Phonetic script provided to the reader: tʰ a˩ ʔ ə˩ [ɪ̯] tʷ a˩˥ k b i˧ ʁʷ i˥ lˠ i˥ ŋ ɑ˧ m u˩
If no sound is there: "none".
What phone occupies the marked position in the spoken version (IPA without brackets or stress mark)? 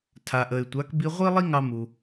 ɪ̯